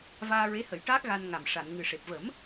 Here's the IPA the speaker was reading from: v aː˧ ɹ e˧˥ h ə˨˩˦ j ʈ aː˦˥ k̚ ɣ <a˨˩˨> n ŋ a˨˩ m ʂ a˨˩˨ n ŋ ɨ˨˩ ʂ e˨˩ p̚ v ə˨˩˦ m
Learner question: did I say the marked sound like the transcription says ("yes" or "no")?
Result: no